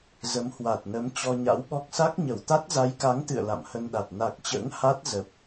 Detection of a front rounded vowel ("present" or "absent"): absent